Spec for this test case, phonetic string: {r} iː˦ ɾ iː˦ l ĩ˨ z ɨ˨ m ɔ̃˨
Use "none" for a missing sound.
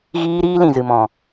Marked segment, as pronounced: ɣ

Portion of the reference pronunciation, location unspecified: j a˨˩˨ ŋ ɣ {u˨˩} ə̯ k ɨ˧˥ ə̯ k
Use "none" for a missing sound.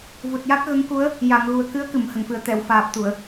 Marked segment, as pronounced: u˨˩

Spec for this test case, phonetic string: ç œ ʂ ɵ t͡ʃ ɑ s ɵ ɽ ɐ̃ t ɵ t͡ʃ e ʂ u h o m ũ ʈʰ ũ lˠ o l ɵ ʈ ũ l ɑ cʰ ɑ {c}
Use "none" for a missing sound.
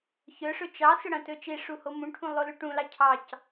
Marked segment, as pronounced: c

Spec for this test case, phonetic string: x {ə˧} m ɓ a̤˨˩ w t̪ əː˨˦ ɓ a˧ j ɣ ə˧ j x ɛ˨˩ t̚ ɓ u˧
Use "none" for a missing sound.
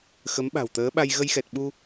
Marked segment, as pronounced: ə˨˦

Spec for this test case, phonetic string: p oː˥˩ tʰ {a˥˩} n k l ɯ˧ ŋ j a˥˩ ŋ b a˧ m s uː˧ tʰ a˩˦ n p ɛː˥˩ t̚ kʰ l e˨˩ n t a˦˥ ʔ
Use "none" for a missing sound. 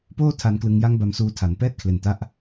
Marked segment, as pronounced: a˧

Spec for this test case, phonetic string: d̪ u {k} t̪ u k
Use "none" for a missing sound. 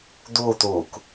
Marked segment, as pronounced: none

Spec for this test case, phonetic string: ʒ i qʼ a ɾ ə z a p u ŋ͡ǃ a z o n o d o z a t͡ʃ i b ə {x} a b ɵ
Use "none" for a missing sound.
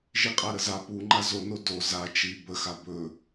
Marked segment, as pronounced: x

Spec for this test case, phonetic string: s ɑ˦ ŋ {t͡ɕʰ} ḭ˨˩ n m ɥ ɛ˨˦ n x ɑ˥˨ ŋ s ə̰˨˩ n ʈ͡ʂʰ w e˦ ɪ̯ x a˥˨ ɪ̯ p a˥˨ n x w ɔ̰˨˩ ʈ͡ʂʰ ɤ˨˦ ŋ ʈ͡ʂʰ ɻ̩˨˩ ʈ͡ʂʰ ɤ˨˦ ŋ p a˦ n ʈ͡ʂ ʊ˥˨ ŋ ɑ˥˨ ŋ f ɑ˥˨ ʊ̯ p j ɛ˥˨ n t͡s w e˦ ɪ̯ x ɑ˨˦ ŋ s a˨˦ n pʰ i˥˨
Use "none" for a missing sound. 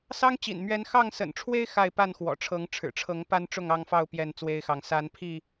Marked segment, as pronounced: t͡ɕ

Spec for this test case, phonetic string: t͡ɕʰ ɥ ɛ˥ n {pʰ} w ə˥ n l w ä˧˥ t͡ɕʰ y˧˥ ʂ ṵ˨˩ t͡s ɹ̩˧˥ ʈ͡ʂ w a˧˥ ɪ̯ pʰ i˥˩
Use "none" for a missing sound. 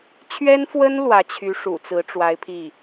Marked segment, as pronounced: f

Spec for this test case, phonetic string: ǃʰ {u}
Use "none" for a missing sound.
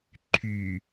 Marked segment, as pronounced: y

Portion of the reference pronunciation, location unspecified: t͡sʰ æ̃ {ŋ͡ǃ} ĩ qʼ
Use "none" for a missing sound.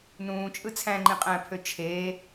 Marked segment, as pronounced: ŋ͡ǃ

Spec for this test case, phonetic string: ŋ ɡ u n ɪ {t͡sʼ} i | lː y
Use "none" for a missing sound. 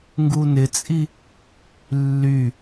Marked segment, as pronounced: t͡sʼ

